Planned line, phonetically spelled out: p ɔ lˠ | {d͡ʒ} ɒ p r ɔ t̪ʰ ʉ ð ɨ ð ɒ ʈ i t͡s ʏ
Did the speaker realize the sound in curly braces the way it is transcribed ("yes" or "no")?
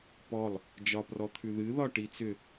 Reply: yes